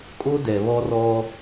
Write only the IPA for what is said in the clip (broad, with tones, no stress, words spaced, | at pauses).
kʼo˦dɛ˨ βɔ˦rɔ˦